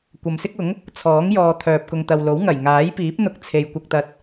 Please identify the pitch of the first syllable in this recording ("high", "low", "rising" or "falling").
low